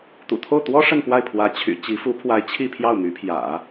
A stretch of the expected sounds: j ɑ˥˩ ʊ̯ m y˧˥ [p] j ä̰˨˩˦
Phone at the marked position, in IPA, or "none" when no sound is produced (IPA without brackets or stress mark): pʰ